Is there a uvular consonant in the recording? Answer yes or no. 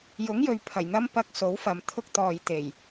no